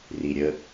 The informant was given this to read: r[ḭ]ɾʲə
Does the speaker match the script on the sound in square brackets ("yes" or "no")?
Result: no